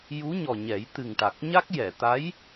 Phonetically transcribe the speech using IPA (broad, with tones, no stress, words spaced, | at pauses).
ju˧˥ɲɔ˨˩ ɲɛ˨˩˦jt̪ɨ˨˩ŋʈa˨˩k̚ɲa˦˥k̚ jɛ˨˩˨ t̪a˧˥j